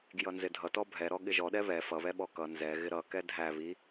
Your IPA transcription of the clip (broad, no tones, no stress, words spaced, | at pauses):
ɡjʌnzɪdʱʌtɔ bʱɛ ɾɔɠɪʒɔ ɗɛβɛ fʌβɛɓɔ kʌ nzɛ ɣɪɾʌ kɛdʱæ βi